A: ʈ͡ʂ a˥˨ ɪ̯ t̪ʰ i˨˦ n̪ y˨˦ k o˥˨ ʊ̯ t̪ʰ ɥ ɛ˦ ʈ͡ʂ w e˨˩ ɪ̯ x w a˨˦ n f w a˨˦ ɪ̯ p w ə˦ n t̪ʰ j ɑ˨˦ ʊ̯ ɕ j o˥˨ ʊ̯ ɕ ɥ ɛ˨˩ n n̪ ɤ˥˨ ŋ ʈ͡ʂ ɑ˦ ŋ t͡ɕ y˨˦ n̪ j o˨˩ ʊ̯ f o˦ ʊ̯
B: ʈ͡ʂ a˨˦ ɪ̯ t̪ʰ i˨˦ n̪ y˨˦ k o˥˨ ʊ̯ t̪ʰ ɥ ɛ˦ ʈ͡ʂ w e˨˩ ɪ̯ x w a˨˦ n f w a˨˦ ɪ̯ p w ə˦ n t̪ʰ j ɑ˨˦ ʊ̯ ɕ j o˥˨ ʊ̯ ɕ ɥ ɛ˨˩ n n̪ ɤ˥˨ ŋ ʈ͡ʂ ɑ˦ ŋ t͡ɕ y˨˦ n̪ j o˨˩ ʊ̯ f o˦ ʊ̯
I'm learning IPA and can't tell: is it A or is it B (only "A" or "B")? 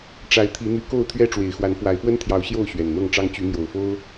B